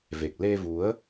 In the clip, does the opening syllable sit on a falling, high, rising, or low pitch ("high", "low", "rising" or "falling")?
low